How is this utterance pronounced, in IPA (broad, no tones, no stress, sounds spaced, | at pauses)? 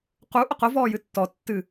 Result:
q u ʔ ʊ q ʊ v ɔː j ɨ tː ɔ tː ɨ